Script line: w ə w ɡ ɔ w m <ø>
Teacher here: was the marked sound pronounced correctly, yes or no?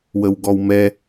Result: no